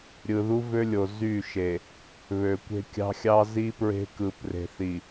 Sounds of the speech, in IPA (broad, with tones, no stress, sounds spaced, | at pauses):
ɾʲ ɯ˨ ð u˦ v ø˦ lʲ o˨ z y˦˨ ʃ e˨ | β ø˨ kʷ e̤˦ kʲ ɑ̤˦ xʲ ɑ˦ z i˦ p ɹ e̤˦ k ɯ˨ p r e̤˨ θ i˨